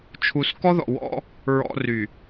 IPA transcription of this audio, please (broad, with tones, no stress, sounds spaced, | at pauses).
t͡ʃʰ u˨ s k ɔ˦ ð ɔ̰˨ w ɔ̰˦ | ɹ ɔ̰˨ r y˨